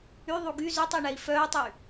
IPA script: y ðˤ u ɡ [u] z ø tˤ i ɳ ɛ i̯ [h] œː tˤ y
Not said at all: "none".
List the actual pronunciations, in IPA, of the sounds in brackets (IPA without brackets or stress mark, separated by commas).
y, f